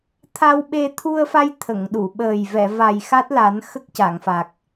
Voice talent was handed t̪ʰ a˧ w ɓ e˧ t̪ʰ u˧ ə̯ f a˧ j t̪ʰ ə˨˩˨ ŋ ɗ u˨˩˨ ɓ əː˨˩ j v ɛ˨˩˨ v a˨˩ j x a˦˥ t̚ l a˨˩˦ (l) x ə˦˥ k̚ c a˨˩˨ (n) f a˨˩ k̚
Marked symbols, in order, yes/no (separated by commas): no, no